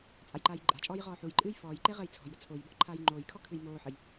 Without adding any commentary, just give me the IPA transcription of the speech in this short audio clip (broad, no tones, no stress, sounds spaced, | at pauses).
t͡sʼ a j ǃ aː j ǃʼ a̤ t͡ʃʼ ɔː j ʁ ɔː ħ u j ǃʼ ɨː j f ɔː j ǃ e ʁ əː j t͡sʰ ɔ̤ j ɾ ə t͡sʰ o j b ɔ̤ ǃʰ aː j ŋ͡ǃ oː j kʰ ɔ kʰ ɨ j m oː ħ ə j